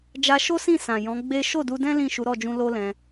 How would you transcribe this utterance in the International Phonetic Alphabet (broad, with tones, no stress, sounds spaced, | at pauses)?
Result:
d͡ʒ a˧ ʃ o˦ s ĩ˦˨ s ã˨ j ɔ̃˨˦ ɡ͡b e˦ ʃ o˦˨ d u˧ d ɛ̃˦ l ĩ˦˨ ʃ u˨˦ ɾ ɔ˦˨ d͡ʒ ũ˧ l o˦ l ɛ̃˧